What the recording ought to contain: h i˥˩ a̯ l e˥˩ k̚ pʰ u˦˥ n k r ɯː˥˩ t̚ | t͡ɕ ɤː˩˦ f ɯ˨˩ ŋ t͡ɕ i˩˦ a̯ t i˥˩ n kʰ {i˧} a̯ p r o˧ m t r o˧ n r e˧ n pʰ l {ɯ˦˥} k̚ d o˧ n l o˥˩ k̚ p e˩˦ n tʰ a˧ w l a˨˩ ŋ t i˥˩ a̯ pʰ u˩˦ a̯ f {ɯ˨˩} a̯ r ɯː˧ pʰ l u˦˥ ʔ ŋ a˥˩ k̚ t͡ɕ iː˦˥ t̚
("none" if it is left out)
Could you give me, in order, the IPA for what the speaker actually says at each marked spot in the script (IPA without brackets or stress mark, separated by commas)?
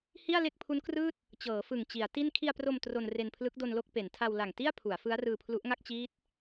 i˧, ɯ˦˥, ɯ˦˥